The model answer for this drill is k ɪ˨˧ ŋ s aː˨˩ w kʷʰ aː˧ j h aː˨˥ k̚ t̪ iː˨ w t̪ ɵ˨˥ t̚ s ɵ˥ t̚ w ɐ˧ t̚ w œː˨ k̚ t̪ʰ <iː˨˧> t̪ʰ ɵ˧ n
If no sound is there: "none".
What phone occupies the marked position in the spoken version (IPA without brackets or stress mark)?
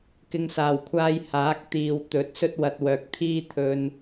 iː˥